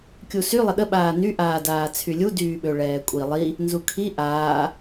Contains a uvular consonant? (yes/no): no